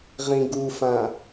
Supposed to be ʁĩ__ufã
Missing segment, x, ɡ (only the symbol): ɡ